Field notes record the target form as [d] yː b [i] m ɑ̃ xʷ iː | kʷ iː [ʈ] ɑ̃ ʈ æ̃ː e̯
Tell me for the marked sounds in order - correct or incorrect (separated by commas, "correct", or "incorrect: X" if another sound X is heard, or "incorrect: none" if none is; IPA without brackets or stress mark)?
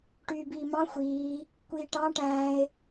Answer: incorrect: ʈ, incorrect: iː, correct